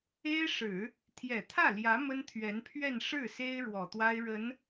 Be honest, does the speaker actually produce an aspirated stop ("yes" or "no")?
yes